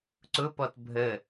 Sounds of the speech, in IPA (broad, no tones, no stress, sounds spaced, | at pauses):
ǀ ʊ p ɔ t bʱ ə